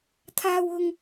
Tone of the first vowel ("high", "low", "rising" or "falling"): high